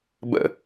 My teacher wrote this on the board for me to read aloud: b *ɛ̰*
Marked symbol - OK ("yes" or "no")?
no